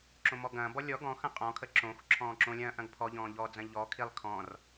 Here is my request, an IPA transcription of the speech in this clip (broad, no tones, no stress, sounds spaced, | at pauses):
ǁ õ m ɔ ɡ ɐ̃ː b ɔ lʲ ɔ ɡ ɔ̃ x ɐ̃ qʼ ɔ̃ kʰ ə ǁ õ x ǁʰ ɔ̃ː ǁ õ lʲ ɐ̃ː ʔ ɐ̃ ɡ pʰ ɔ ʎ ɔ̃ː ʎ ɔ d͡z ɐ̃ ʎ ɔ kʰ i lˠ kʰ ɔ̃ r